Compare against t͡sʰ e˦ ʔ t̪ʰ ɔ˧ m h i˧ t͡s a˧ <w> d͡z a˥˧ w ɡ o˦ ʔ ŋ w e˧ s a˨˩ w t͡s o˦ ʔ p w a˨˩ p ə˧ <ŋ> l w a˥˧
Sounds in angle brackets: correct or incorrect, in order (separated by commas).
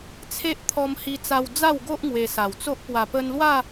correct, incorrect